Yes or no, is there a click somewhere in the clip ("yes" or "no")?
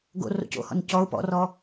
no